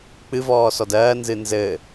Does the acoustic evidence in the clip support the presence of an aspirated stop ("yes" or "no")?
no